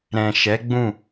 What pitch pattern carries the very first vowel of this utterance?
low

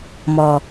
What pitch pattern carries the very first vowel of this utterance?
low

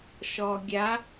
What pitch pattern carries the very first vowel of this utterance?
low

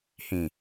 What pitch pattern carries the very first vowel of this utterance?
low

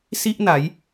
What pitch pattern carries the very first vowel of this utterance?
high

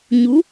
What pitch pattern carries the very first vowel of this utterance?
rising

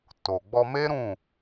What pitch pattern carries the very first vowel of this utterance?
low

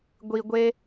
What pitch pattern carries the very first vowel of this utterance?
low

